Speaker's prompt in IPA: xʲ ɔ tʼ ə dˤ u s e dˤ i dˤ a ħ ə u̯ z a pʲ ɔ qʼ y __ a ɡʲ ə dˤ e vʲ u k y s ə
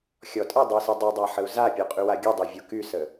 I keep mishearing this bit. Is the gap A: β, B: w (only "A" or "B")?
B